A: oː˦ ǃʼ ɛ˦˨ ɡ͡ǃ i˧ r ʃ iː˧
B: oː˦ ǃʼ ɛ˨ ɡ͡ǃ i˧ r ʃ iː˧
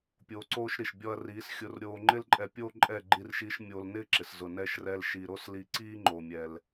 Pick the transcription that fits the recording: A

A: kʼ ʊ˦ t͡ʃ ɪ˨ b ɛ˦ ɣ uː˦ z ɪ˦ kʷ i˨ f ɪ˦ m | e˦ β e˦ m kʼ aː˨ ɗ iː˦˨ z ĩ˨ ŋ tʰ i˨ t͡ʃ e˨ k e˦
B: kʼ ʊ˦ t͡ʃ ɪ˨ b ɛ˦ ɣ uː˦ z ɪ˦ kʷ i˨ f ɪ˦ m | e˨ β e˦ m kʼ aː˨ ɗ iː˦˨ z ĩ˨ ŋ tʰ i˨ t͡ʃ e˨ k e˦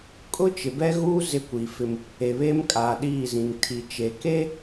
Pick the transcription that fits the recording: B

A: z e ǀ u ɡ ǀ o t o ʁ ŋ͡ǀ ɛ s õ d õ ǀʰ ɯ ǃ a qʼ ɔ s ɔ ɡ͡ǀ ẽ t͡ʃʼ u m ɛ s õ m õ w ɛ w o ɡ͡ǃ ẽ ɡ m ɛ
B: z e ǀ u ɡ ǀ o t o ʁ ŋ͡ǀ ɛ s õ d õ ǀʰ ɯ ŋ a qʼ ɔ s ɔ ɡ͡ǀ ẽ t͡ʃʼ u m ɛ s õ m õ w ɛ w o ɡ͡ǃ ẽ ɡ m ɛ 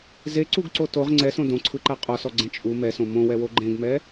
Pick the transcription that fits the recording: A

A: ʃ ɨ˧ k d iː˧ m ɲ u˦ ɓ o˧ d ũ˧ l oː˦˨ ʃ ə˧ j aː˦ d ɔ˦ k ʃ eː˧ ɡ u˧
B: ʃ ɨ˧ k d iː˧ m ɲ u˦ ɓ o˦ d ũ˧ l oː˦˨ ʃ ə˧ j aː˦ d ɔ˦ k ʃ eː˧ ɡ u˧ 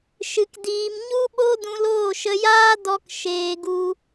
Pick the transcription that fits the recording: B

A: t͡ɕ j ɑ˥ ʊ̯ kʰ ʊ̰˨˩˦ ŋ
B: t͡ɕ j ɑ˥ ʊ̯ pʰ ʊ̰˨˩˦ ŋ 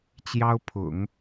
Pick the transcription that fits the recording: B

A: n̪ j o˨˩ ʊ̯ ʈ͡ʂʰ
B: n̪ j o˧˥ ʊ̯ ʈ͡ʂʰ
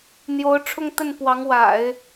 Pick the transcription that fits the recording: B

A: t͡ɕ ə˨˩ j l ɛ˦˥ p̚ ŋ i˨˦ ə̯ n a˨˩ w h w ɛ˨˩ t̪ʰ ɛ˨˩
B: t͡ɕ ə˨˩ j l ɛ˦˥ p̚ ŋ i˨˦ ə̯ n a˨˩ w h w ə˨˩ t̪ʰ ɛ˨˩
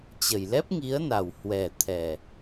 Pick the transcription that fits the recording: A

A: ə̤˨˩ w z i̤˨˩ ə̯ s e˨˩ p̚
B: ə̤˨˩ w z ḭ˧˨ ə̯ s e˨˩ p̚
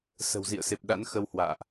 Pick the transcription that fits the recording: B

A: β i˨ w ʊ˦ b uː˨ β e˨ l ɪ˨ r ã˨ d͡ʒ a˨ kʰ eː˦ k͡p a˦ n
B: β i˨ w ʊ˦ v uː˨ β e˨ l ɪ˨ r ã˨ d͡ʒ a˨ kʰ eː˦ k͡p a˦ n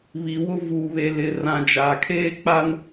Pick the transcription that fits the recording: B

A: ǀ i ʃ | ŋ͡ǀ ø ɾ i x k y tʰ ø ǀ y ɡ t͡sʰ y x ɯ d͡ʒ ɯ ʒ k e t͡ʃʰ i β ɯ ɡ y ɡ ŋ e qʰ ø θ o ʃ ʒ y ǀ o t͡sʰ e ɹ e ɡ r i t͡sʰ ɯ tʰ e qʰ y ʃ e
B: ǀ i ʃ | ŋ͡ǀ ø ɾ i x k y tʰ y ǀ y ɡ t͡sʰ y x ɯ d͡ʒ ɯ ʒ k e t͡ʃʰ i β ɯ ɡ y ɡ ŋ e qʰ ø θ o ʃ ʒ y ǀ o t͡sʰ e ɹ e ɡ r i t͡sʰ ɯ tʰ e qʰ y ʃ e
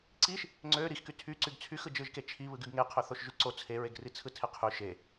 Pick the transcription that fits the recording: B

